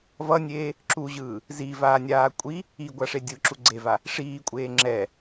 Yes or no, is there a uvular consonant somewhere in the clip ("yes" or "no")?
no